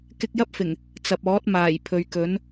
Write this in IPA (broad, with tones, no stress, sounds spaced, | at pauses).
k ɪ˧ k̚ j ɐ˥ p̚ f ɪ˨˩ ŋ | t͡s ɐ˨ p̚ ɔː˨˥ t̚ m aː˨˩ j pʰ ɵ˨ ɥ k ɵ˨˥ n